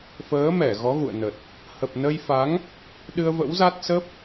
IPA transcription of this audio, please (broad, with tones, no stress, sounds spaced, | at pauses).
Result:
f əː˨˦ m ɛ˧˩ ɣ ɔ˨˦ ɣ ṵ˧˨ ə̯ n ə˨˩ t̚ | h ə˨˩ p̚ n ə˧ j f a˨˦ ŋ | ɗ ɨ˧ ə̯ v ə̰˧˥ w z a˦˥ t̚ s ə˦˥ p̚